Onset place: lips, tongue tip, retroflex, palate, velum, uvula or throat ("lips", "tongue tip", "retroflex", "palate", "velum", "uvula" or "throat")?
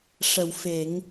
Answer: retroflex